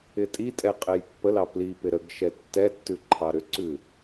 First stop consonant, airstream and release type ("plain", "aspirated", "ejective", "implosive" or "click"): ejective